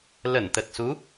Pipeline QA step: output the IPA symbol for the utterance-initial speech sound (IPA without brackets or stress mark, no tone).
l